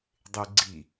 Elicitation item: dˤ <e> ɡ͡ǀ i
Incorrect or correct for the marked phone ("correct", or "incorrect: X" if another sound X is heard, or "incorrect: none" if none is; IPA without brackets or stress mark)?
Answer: correct